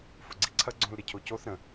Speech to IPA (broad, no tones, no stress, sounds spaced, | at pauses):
f ʊ ɡ͡ǀ i ǀʰ ɐ ɡ͡ǀ õ l ɾ ɪ cʰ o c o θ ɾ ə̃